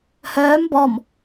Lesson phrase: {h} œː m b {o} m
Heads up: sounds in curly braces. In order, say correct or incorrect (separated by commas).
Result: correct, incorrect